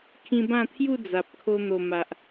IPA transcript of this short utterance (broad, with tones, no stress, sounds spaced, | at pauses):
kʰ ĩ˧ b ã˥˧ t̪ʰ j u˥˧ d͡z a˨ p̚ kʰ o˧ n̪ o˨˩ m a˨ ʔ